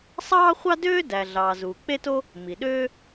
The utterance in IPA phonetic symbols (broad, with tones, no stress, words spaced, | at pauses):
sˤɑː˥χʷɑ˥døː˥ dæ˩ ɮɑː˩zuː˩k͡pe˥to˥ | mi˩ɗøː˥